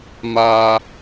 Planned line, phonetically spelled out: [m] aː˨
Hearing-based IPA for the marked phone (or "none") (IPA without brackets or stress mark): m